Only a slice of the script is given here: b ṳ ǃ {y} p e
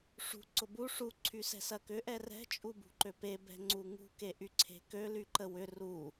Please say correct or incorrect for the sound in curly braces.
incorrect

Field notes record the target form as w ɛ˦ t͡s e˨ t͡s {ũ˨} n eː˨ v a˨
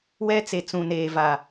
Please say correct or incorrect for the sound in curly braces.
correct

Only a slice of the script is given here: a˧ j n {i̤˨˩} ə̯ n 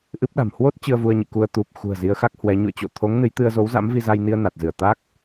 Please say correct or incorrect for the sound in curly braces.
incorrect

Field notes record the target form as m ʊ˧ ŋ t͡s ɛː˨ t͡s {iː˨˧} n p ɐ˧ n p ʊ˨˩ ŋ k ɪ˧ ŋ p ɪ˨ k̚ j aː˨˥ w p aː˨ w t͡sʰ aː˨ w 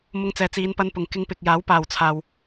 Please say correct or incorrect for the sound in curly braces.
correct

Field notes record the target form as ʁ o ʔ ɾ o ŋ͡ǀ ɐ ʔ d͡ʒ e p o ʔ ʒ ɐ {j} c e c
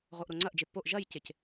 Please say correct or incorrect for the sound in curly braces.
correct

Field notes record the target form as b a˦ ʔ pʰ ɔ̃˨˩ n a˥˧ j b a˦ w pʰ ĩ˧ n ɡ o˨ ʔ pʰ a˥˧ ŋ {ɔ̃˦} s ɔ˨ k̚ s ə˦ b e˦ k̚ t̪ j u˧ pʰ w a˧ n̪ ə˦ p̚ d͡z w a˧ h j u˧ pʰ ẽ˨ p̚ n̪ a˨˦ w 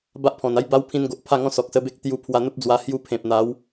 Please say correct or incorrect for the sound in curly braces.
correct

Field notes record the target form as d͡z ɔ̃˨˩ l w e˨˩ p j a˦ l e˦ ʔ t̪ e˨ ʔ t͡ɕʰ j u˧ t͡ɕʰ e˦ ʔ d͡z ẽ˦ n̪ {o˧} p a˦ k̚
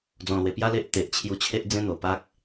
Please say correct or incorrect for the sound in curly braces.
incorrect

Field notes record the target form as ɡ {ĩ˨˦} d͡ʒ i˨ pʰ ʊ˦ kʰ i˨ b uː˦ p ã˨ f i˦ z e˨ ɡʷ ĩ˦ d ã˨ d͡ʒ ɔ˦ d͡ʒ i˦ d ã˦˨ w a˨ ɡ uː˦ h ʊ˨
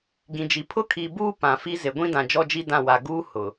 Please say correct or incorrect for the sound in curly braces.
incorrect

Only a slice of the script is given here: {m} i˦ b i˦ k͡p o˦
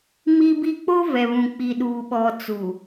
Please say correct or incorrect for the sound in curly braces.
correct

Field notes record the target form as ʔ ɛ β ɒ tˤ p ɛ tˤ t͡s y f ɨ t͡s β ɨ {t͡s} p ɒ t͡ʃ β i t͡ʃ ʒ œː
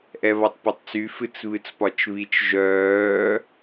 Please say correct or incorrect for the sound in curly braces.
correct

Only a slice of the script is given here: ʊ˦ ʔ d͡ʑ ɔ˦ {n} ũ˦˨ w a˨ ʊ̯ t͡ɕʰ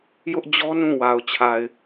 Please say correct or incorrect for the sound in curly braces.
correct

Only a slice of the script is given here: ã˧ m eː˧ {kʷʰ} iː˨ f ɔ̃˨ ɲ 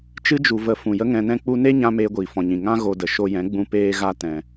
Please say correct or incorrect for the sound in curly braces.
incorrect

